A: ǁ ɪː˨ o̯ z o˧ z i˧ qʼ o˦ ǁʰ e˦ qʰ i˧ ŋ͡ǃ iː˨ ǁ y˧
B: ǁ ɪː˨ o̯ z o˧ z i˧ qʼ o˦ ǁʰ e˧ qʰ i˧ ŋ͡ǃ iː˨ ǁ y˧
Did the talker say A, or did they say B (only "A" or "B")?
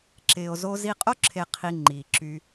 B